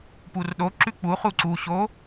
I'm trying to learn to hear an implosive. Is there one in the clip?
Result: yes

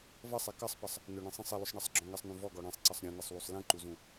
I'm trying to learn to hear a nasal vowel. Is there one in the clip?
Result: yes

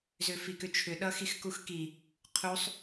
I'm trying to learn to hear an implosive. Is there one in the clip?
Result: yes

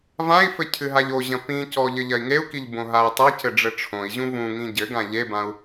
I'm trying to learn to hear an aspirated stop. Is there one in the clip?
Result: yes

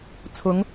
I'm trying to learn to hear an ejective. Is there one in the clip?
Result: no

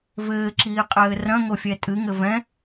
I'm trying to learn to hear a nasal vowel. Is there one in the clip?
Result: yes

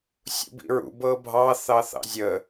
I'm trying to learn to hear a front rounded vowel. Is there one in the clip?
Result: no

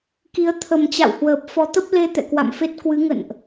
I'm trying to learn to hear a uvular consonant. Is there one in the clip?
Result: no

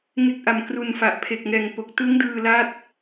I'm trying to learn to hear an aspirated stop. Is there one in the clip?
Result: yes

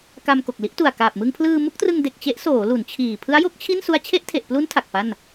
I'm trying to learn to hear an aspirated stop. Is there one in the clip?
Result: yes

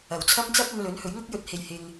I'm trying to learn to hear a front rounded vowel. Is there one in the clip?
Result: no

